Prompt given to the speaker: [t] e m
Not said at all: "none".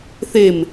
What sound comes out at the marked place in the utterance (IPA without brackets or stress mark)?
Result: θ